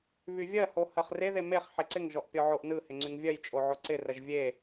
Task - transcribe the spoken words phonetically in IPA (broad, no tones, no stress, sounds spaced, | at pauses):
β y vʲ ɜ h o h ɜ χ r e ð e m e χ ħ e ǀ ɪ ŋ ʒ ɔ ʔ pʲ ɔ ʕ o ʔ n ɯ h ɪ ŋ͡ǀ y ŋ vʲ ɜ j t͡ʃʼ o ʕ o ǀ ɪ r ɜ ʒ vʲ e